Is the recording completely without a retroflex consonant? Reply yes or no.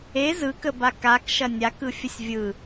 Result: yes